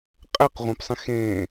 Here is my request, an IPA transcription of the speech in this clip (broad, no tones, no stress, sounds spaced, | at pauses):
qʼ ɛ q ʁʷ ẽ p sˤ ẽ x ẽː